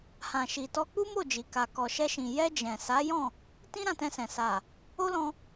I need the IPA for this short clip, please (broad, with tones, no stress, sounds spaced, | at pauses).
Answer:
h ã˨ ʃ i˨ t ɔ˧ k͡p u˦ m o˦˨ d͡ʒ i˨ k a˨ k ɔ˨ ʃ ɛ˧ ʃ ĩ˨ j ɛ˧ d͡ʒ ɛ̃˨ s a˨˦ j ɔ̃˦˨ | t ĩ˦ ɾ ã˧ t ɛ̃˧ s ɛ̃˨ s a˨ | o˦ l ɔ̃˧